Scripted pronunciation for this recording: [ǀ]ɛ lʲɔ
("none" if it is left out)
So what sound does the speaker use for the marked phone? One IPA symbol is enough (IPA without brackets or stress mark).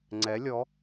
ŋ͡ǀ